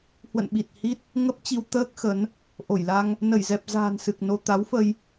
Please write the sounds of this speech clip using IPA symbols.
h w ə̰˧˨ n ɓ i˨˩ t̚ h i˦˥ t̚ | ŋ ə˦˥ p̚ t͡ɕ i˧ w t̪ əː˦˥ k̚ x ə˨˦ n | ʔ o˧˩ j l a˧ ŋ | n ə˧˩ j z ɛ˨˩ p̚ z a̤ː˨˩ n s ɨ˨˩ k̚ n o˧ t̪ a˨˦ w f ə˧ j

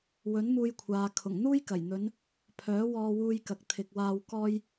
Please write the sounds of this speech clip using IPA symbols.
w ɵ˨˥ n m uː˧ j kʷʰ aː˨ kʰ ʊ˨˩ ŋ n̪ uː˥ j k ɐ˨˩ j n̪ ɵ˨˧ n | pʰ œː˨˥ w ɔː˧ w uː˧ j k ɐ˨ k̚ t̪ʰ ɪ˨ k̚ w aː˧ w k ɔː˥ j

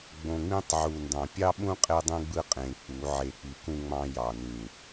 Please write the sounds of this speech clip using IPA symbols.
ɡ͡b õ˨ ŋ͡m ĩ˦ tˤ ʕ u˨ n d ɑ̃˨ pʲ ɑ˦ ɓ ũ˦ qʼ e˦ dˤ ẽ˦ ɡ͡b ɯ˦ qʼ ẽ˨ k͡p u˨˦ ʕ e˨ k͡p i˨ k ũ˦ ŋ͡m ɑ̃˦ j ɑ˨ n ĩ˨

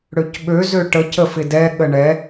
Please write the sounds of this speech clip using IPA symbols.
ɽ ø c ɓ ø z ø ʈ ə c ə f ɪ d ɛ ɠ ə ɳ ɛ

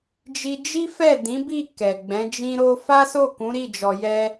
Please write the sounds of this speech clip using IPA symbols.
d͡ʒ i˧ d͡ʒ i˦ f ɛ˦˨ d ĩ˨˦ b i˦˨ k ɛ˨ ɡ͡b ɛ̃˨˦ d͡ʒ ĩ˦ ɾ o˦ f a˦ s o˦˨ k ũ˨˦ ɾ i˦˨ d͡ʒ ɔ˨ j ɛ˧

